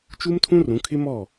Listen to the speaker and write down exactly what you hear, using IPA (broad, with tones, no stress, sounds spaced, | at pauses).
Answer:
t͡ʃ u˦ m tʰ ũ˦ r ũ˨˦ kʰ ɪ˦ m ɔ˦˨